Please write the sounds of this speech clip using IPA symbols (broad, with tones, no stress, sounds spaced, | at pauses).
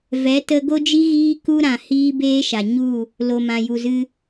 v ɛ˨˦ t ə˧ ɡ o˦ d͡ʒ i˦ ɣ iː˦ k u˦ ɾ ã˨ h iː˦ b eː˦ ʃ a˨ ɲ u˦˨ | l o˨ m ã˨ j u˨ z ɨ˧